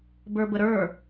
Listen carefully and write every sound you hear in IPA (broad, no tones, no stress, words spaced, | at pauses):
bə˞bəɾə˞